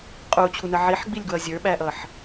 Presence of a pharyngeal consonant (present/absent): present